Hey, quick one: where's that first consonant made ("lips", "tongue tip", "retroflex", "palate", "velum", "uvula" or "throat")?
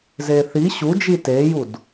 tongue tip